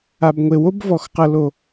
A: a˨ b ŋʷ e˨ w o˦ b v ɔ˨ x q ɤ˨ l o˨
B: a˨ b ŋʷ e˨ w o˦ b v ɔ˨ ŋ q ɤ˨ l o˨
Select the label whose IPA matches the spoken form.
A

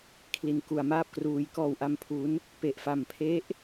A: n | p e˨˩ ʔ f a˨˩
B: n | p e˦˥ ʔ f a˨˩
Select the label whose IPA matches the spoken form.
A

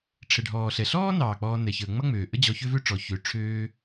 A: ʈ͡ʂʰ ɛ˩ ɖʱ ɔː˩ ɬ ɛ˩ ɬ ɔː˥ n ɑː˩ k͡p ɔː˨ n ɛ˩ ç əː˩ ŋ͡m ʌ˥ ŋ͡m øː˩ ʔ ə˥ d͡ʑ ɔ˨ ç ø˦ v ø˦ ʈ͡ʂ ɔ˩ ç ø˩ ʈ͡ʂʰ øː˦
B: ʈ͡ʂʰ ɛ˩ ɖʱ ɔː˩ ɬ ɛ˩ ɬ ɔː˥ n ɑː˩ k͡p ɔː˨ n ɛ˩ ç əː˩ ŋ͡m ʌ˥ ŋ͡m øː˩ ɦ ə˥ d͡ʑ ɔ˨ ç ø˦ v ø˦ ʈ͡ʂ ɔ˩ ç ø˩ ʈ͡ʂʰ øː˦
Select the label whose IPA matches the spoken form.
A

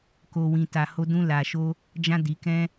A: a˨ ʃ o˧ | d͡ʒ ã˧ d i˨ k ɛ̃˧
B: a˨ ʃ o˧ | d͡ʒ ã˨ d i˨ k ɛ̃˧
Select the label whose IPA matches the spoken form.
A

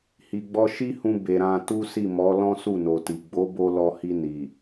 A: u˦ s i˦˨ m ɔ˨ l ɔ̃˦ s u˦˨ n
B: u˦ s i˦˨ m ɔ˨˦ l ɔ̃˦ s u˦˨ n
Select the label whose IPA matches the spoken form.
B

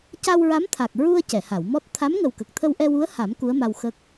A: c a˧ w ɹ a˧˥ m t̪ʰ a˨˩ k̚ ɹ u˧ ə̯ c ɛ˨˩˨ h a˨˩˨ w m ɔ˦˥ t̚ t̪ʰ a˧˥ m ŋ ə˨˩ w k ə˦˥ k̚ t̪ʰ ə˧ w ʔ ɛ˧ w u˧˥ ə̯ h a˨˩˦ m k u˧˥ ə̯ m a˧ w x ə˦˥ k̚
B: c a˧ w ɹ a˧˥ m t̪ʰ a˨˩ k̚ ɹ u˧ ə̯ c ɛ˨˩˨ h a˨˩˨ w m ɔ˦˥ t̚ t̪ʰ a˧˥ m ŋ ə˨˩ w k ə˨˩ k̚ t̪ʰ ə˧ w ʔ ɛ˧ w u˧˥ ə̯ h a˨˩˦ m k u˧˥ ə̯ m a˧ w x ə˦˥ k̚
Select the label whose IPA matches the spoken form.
B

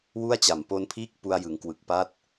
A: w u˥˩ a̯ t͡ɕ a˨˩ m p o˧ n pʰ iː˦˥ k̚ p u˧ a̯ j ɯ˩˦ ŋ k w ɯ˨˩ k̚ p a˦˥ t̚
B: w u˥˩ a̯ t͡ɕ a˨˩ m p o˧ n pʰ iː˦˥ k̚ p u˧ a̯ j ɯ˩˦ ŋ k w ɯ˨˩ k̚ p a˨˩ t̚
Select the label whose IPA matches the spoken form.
A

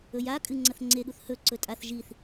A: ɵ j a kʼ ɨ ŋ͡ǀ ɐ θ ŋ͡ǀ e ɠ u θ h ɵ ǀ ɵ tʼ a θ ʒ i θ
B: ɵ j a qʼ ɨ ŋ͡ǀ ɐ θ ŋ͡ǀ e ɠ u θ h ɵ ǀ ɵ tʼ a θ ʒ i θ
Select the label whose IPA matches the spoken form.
A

